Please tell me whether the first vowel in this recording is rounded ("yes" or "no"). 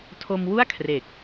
yes